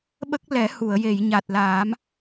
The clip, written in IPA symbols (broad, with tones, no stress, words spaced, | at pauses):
ɓə˦˥k̚ lɛ˨˩˦hu˨˩˨ə̯je˨˩˨j ɲa˨˩t̚laː˨˩˦m